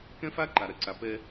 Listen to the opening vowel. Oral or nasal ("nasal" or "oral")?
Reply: nasal